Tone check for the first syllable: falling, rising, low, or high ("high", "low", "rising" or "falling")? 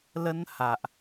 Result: high